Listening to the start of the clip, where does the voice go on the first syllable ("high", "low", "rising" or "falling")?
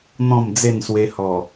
falling